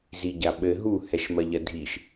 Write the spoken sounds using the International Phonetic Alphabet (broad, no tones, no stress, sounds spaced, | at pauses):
z i ɟ a ɓ ɘ ɦ u h ɛ ʃ m ɐ ʎ ɐ dʱ i ʃ